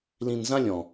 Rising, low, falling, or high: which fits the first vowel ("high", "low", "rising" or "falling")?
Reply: low